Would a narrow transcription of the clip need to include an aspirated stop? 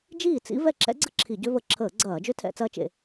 yes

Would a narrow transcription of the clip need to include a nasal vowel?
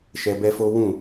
yes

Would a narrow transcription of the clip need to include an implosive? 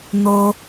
no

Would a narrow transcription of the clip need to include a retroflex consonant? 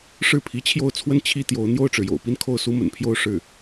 yes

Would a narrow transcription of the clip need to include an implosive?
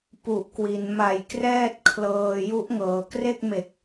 no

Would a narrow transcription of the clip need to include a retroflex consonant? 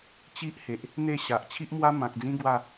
no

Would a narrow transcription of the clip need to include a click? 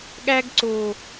yes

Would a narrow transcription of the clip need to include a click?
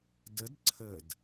yes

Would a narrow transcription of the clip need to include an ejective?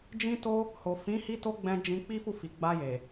no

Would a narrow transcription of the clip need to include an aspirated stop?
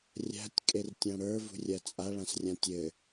no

